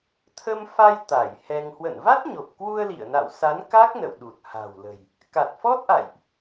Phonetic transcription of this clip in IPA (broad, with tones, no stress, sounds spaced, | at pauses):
t̪ʰ ə˧ m f a˧ j t̪ a˧˩ j h ɛ˧ ŋ h w ə̰˧˨ n v a˦˥ t̚ ɲ o˨˩ p̚ k w u˧ ə̯ l ḭ˧˨ ə̯ n a̰˧˨ w s a˨˦ n k a˦˥ k̚ n ə̰˧˨ w ɗ u˨˩ t̚ h a̤˨˩ w l ə̤˨˩ j | k a˨˩ t̚ f ɔ˦˥ t̚ ʔ a̰˧˨ j ʔ